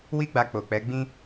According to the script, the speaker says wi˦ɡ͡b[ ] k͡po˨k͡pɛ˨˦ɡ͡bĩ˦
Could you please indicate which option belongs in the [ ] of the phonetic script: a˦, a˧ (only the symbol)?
a˧